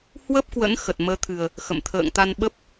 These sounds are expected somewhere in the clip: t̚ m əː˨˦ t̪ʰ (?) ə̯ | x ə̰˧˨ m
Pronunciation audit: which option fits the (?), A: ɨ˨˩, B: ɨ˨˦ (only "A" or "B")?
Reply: A